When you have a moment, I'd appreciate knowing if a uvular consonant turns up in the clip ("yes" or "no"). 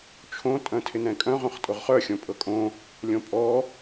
yes